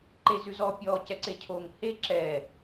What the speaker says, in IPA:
ǃ e z ʉ z ɔ pʲ ɔ c ɛ ǀ e cʰ o ŋ h e ǁ ɛ

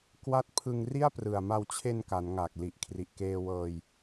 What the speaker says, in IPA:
k w a˦˥ t̚ pʰ ɯ˧ ŋ r i˥˩ a̯ p r ɯ˨˩ a̯ m a˧ w t͡ɕʰ e˧ n k a˩˦ n ŋ aː˨˩ k̚ l i˨˩ ʔ kʰ r i˨˩ ʔ k eː˧ w ɤː˧ j

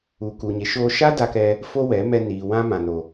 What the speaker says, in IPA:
u˨ k u˨ ɲ e˨ ʃ oː˧ ʃ a˦ d a˧ k ɛ˧ | f o˦ w ɛ˨˦ m ɛ˧ n iː˨ w ã˦ m ã˧ n o˧

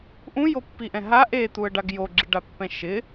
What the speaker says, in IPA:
ʔ ũ j o pː i ʔ ɛ̃ ɦ a ʔ e t̪ u ə̯ ɖ a ɡ j o ɡ͡ǁ i ɖ a pː ɛ̃ ʃ ɪ

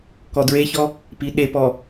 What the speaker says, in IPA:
k ɔ d ɹ e ç ɔ | p i ɗ e p ɔ

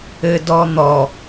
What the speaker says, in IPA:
ɘ d ɔ n̪ ɔ

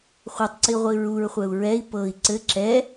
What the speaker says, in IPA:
χʷ a tˤ ǀ i ʁʷ i ɹ u ɹ χʷ ɛ u̯ ɹ ɛ i̯ p ɤ i̯ ǀ ɘ ǁ ɛ

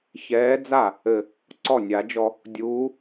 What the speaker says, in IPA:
ç ɛː˧˥ d͡z a˥˩ | ɘ˨˩ | ǀ ɔ˥˩ nʲ a˨˩˦ d͡ʒ ɔ˧ | dʲ uː˧˥

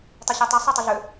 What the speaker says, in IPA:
tˤ i ɕ e tˤ i sˤ y tˤ y ɮ ø

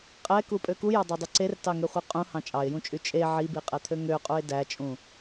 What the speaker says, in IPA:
qʼ ɛ k u pʼ ø k u j ɑ dˤ æ dˤ ʉ ǀ e r t ɑ ŋ ø χʷ e qʼ ũ h ɑ̃ t͡ʃʼ ɑ ɪ̯ j ũ t͡ʃʼ y t͡ʃʼ e ʕ i b i qʼ ɛ t̪ʰ ø ŋ ø qʼ u ɪ̯ d æ t͡ʃʼ ũ

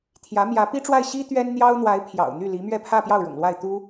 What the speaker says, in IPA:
t̪ʰ j ä˧˥ m j ä˧˥ p i˥ ʈ͡ʂ w a˥˩ ɪ̯ ɕ i˥ t̪ ɥ ɛ˥ n n̪ j ɑ˥ ʊ̯ n̪ w a˧˥ ɪ̯ pʰ j ɑ̰˨˩ ʊ̯ n̪ y˥˩ l i˧˥ m ɥ ɛ˥˧ pʰ ä˥˧ p j ɑ˥˩ ʊ̯ ɻ ʊ̰˨˩ ŋ l w a˥˩ ɪ̯ t̪ u˥

